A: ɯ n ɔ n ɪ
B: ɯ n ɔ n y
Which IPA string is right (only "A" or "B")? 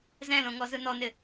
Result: A